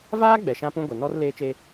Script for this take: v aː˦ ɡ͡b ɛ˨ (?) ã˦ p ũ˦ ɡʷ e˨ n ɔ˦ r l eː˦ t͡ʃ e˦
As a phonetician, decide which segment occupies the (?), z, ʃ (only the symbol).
ʃ